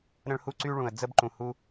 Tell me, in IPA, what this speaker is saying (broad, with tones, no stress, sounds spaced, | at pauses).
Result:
ɾ ə̃˥ ɭ h u˥ ǀ y˥ ɭ ũ˩ ə̯ d͡z ə˥ b ǃ ũ˩ h u˧